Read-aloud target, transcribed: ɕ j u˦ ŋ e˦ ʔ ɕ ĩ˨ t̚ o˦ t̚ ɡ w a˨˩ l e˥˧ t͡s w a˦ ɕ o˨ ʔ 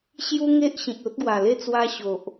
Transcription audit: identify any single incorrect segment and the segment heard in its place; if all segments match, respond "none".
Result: none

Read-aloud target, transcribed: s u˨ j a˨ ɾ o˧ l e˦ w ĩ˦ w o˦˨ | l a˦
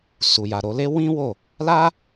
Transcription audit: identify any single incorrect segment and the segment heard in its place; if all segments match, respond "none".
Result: none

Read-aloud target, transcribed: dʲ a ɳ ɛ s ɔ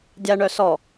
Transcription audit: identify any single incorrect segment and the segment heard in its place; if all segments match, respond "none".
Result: ɛ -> œ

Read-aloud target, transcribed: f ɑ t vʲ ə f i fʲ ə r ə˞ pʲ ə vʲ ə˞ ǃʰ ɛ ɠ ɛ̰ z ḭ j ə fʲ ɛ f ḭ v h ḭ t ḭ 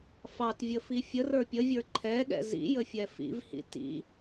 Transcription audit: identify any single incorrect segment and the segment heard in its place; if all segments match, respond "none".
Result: none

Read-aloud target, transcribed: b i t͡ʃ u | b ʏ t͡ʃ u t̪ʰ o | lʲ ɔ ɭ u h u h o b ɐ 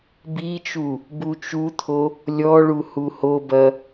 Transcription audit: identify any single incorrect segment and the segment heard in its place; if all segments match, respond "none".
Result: ʏ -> u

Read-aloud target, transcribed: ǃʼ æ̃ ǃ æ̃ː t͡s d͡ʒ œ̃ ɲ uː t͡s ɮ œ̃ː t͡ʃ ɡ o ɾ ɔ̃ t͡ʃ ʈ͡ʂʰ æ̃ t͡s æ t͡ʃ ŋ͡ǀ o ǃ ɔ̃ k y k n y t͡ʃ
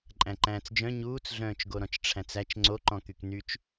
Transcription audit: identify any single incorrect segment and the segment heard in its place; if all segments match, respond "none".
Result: none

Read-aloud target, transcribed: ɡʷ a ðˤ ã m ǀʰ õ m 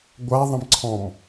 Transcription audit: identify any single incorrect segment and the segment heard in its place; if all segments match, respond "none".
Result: õ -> ɔ̃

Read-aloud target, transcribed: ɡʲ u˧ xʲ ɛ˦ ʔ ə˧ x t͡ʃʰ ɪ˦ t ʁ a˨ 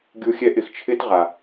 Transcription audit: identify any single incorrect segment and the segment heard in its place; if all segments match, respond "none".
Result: ə˧ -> ɪ˧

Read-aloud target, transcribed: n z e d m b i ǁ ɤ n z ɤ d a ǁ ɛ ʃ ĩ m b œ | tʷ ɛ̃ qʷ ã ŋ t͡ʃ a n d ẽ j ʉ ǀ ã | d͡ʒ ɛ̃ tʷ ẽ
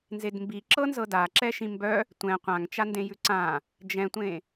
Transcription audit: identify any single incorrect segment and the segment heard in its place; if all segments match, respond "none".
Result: none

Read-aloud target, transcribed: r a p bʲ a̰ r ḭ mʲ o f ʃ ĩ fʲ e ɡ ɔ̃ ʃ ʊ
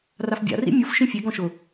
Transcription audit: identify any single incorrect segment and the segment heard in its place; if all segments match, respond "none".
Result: p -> f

